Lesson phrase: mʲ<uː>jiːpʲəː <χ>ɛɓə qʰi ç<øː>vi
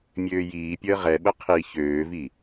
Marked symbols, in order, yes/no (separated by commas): no, no, yes